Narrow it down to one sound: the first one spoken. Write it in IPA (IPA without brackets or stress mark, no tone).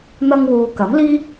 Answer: n̪